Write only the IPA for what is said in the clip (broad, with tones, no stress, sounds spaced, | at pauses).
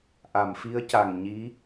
ʔ a˨˩˨ m f i˧˥ ə̯ c a˨˩ ŋ ɲ i˧˥